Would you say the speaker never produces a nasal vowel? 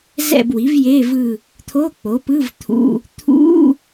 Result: yes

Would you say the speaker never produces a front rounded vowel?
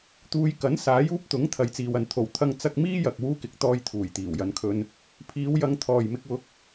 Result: yes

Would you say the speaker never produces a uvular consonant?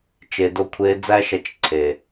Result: yes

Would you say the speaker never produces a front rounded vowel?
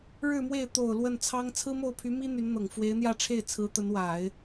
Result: no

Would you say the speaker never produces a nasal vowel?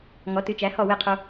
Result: yes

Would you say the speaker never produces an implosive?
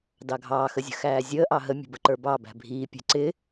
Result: yes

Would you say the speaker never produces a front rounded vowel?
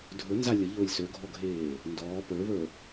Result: no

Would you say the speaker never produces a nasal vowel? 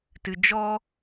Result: yes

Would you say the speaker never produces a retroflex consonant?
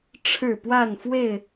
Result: no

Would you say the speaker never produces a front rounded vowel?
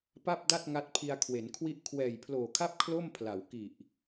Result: yes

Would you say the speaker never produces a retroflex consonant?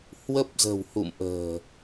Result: yes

